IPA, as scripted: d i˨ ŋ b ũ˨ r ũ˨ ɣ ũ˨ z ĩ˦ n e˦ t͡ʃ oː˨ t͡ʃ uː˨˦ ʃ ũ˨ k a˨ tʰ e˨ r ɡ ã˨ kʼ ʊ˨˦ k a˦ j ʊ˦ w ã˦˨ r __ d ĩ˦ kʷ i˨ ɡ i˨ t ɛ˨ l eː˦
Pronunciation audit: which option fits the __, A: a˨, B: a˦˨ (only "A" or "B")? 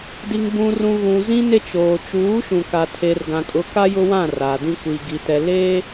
A